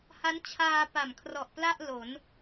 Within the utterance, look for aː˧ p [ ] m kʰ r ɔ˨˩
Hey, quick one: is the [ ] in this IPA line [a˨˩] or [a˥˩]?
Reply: a˨˩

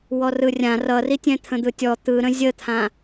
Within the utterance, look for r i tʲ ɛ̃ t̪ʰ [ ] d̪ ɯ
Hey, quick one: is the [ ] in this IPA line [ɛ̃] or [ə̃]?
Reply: ə̃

